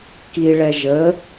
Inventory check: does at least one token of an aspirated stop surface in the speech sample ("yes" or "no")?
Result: no